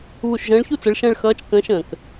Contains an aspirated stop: no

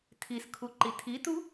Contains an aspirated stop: yes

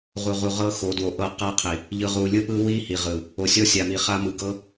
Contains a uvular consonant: yes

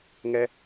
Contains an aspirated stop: no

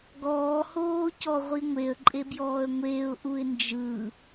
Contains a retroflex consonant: no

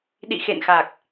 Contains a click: no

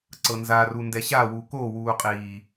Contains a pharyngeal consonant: no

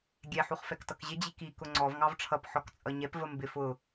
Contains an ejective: yes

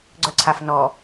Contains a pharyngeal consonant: no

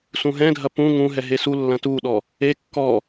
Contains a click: no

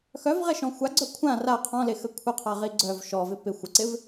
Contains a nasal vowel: yes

